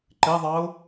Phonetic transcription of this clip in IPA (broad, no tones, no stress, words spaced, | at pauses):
ǃɪðˤɑʊ̯